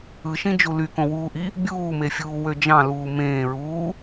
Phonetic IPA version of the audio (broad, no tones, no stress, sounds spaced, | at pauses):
ɯ ʃ ĩ d͡ʒ u l y k õ w uː ʔ i | bʲ uː m e fʲ uː w ø d͡ʒ ɑ̃ l uː m ẽː ɹ uː